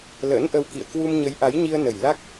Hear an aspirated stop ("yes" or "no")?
no